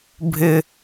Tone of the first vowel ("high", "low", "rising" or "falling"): high